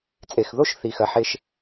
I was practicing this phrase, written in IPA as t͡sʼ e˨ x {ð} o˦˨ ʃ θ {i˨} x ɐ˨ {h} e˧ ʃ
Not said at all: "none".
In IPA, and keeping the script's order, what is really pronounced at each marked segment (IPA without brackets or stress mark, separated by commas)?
ð, i˨, ħ